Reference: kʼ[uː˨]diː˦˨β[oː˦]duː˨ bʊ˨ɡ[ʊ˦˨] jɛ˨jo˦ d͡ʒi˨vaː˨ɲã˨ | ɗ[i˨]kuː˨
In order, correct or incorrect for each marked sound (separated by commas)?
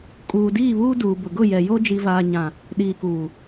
correct, incorrect, correct, incorrect